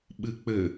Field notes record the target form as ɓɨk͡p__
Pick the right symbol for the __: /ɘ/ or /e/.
ɘ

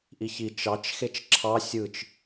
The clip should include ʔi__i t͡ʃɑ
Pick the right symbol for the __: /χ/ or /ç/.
ç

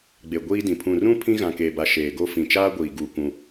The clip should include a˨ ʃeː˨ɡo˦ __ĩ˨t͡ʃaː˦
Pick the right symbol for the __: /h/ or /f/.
f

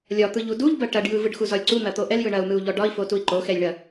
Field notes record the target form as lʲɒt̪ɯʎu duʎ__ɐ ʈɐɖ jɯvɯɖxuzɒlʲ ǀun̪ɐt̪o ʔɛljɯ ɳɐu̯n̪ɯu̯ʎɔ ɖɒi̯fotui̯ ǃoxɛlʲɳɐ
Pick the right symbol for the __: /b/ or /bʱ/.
b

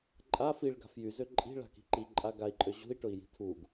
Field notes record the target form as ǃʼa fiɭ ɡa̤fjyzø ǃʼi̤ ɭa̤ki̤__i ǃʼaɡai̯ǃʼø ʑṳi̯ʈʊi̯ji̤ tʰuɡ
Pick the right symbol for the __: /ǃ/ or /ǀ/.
ǃ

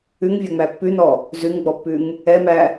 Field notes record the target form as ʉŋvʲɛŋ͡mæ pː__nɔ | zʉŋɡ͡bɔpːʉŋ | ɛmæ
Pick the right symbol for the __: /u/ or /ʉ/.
ʉ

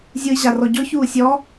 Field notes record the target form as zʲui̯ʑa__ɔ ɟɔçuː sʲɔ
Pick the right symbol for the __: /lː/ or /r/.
r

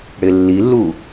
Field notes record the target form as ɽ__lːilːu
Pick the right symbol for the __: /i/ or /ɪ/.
ɪ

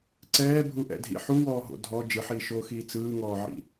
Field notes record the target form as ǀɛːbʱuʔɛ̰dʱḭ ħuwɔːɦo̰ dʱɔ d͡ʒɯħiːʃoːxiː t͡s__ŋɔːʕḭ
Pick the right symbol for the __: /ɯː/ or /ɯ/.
ɯː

